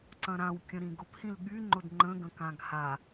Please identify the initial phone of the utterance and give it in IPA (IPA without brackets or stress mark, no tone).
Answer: ǀ